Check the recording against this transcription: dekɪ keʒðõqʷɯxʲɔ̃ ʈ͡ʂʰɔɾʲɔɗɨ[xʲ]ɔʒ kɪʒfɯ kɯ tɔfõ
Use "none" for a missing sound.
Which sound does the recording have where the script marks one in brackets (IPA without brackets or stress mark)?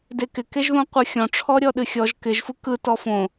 xʲ